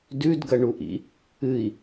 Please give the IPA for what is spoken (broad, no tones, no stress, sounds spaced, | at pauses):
d ʉ d ɡ ɐ ɳ u ʔ ḭ | ɨ i̯